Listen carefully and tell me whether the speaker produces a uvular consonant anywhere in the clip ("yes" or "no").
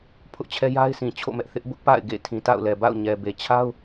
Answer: no